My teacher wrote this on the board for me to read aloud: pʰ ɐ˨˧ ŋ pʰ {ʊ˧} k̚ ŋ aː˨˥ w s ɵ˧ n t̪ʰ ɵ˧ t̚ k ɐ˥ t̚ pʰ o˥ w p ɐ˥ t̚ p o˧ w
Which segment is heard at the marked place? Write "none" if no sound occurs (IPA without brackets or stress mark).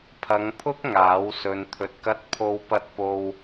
ʊ˥